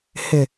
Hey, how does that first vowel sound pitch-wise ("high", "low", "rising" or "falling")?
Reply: low